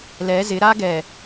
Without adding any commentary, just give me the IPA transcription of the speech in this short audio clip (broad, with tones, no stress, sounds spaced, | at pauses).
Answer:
l ɛ˨˦ z ɪ˨˦ ɾ a˦ ɡ ɛ˨